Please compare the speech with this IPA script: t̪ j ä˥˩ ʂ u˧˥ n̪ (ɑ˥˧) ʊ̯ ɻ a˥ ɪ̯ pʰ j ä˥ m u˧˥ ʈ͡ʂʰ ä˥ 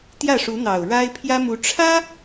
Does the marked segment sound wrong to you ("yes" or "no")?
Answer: yes